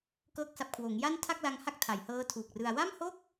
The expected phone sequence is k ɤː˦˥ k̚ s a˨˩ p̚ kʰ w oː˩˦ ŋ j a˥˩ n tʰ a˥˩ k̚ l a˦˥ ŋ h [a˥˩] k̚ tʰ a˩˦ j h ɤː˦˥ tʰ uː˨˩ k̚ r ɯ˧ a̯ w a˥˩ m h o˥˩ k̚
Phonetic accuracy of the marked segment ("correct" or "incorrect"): correct